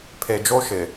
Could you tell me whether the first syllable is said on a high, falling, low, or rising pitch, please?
low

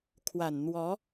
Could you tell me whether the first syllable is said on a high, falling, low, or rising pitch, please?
low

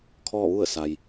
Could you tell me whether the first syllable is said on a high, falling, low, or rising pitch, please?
falling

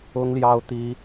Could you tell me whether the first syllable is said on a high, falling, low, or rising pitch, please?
high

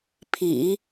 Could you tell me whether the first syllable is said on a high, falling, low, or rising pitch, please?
low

